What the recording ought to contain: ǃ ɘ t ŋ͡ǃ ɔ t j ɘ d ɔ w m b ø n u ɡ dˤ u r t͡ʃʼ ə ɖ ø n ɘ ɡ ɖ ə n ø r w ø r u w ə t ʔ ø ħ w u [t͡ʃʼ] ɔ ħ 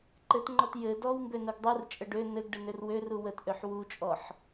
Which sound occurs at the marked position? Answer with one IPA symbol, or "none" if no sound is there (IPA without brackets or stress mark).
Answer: t͡ʃʼ